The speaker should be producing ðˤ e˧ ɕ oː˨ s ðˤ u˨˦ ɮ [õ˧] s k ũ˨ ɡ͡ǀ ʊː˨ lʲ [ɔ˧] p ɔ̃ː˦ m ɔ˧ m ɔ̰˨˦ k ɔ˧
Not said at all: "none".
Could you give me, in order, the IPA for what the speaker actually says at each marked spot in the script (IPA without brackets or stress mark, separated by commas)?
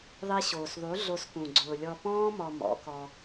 o˧, ɔ˧